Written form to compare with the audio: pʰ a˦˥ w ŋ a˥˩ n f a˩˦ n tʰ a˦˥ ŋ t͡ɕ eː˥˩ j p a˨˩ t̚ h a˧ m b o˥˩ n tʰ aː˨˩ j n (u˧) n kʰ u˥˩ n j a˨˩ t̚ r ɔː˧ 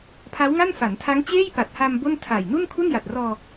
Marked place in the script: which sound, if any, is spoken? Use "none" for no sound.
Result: u˥˩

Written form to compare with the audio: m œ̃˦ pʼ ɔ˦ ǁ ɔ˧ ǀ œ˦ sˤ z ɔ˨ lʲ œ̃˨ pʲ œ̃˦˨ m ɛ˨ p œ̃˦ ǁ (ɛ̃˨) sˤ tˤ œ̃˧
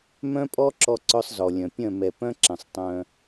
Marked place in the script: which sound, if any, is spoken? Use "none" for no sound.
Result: ɛ̃˨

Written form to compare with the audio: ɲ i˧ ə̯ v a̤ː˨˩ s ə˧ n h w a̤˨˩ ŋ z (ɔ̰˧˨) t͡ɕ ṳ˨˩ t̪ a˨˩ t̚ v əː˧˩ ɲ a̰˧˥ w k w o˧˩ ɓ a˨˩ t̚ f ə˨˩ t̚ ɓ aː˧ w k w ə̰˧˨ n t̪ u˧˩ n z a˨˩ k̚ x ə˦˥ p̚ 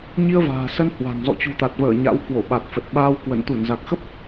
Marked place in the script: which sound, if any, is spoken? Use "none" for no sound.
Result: ɔ̰˧˨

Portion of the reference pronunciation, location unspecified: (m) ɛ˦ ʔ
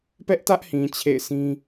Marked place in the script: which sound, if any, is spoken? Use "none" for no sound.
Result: p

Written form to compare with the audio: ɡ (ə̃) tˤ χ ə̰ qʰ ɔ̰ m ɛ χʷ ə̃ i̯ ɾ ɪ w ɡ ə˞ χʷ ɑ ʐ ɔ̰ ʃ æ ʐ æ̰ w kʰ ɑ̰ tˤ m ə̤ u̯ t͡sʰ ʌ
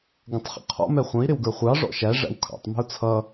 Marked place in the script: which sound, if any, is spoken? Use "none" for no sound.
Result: ə̃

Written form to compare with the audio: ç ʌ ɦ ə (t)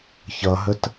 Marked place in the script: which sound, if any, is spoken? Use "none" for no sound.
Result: t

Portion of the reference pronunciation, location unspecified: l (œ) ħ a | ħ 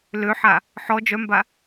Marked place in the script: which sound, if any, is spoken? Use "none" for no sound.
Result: ø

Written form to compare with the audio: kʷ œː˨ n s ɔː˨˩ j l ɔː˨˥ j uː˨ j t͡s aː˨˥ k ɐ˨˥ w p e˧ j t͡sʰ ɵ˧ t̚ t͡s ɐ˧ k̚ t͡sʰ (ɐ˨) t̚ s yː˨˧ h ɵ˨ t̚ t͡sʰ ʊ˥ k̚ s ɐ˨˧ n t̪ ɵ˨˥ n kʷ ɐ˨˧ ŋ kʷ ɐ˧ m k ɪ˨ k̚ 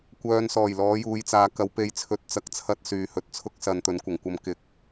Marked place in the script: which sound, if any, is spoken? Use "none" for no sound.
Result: ɐ˥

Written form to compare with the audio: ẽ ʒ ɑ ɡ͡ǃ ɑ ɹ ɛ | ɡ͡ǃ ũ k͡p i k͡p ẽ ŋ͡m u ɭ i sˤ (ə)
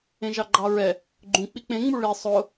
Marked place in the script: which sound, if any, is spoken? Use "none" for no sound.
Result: ʊ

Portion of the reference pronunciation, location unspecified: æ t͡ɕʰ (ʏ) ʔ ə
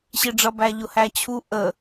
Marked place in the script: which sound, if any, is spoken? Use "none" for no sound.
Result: u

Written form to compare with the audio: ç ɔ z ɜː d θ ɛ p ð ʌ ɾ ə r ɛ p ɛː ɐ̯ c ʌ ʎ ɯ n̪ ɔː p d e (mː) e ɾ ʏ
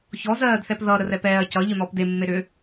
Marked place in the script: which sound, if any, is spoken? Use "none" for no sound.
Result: mː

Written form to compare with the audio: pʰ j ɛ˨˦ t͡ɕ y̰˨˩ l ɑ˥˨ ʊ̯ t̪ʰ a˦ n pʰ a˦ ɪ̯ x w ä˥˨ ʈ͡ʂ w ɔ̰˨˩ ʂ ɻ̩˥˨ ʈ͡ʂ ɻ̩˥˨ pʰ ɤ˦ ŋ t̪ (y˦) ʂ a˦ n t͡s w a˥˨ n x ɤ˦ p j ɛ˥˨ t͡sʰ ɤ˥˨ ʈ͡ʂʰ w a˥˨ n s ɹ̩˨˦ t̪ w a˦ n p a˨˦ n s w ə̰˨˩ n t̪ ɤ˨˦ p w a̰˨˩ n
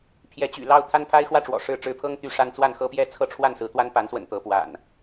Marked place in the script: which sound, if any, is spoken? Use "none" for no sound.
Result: y˦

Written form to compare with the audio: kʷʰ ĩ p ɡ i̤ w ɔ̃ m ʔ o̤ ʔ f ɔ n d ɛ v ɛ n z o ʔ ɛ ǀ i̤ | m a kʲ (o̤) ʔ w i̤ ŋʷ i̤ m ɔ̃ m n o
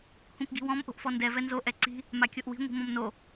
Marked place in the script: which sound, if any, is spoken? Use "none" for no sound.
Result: o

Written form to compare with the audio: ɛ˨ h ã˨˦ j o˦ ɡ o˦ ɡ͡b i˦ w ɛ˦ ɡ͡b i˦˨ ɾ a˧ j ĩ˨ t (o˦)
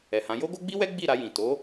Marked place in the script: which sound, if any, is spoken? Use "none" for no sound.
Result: o˨˦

